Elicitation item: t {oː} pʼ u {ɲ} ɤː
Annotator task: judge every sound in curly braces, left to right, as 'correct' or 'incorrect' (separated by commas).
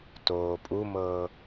correct, incorrect